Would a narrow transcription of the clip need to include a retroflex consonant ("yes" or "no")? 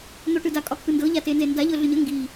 yes